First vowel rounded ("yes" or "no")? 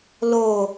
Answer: yes